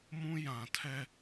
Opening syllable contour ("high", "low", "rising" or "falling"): high